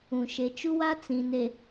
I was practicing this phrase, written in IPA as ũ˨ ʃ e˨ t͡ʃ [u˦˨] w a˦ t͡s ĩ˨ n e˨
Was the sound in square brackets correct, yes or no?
no